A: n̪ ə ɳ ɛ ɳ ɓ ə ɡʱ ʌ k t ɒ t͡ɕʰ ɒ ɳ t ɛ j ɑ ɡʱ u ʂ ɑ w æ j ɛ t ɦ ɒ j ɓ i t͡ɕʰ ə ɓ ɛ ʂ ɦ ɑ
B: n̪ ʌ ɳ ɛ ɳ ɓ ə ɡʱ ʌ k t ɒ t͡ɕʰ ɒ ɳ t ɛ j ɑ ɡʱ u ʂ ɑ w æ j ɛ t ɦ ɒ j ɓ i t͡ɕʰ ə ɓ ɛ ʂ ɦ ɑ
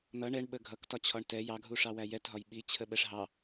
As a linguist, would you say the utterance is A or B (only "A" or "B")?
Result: B